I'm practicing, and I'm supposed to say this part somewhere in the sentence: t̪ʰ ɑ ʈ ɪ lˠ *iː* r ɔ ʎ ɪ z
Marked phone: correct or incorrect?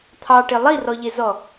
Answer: incorrect